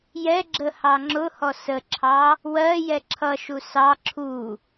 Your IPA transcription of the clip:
j ɛ ɡ͡ǁ ə h ɑ ŋ͡ǁ ʊ h ɔ s ə ǁʰ ɑ | w ɜ j ɛ ǁʰ ʌ ʃ u s ɑ ǁʰ u

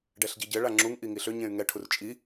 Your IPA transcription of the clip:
ɖ ɛ ɬ ɟ i ɟ ɘ ɭ a ŋ͡ǁ u ŋ ʔ i ŋ i ɬ ʏ ɲ ẽ y̯ ŋ ɛ ʈʰ u r t͡ʃʼ i

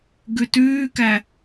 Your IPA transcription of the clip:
ɡ ʉ t ʉː k æ

